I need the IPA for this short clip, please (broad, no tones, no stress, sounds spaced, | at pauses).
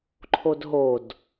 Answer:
ǃʰ o d ɦ o d